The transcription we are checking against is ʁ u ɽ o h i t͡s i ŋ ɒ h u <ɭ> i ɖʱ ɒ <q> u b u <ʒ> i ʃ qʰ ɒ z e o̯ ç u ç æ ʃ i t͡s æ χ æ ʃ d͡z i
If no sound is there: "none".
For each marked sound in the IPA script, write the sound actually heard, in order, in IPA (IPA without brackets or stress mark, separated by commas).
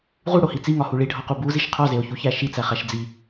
ɭ, q, z